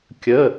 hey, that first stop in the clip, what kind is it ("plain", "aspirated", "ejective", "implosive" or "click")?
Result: plain